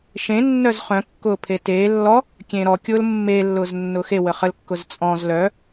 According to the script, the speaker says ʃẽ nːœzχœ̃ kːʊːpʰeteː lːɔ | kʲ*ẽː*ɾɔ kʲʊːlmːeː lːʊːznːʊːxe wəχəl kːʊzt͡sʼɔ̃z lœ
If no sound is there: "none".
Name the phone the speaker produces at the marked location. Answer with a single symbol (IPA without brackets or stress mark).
ẽː